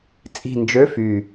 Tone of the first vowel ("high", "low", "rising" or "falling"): low